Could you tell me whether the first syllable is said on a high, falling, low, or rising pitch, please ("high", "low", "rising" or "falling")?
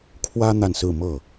high